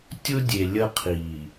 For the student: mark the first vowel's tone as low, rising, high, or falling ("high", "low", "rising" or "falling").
high